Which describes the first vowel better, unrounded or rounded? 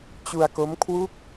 rounded